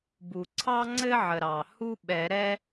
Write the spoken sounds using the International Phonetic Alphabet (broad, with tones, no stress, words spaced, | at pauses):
bu˩ǀʰɑ˥ŋ͡ǀɘ˥ʕə˩ ɾɑ˩ hu˥ɓɛ˨˩˦ɾɛ˥